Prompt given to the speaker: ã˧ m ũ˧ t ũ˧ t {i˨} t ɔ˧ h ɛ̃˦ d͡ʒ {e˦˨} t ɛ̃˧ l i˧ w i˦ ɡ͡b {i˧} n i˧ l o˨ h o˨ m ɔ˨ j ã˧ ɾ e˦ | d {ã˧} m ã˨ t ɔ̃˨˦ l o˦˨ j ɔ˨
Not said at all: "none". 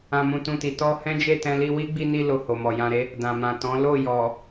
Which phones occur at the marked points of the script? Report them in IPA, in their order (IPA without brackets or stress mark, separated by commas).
i˨, e˦˨, i˧, ã˨